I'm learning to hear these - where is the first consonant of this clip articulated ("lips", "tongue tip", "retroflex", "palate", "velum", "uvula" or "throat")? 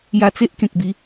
palate